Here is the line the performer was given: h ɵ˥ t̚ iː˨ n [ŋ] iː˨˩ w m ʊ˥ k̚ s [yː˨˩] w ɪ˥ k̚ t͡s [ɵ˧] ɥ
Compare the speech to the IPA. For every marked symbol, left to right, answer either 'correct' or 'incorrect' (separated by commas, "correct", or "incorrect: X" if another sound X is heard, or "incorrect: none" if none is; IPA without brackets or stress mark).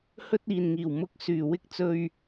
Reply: correct, correct, correct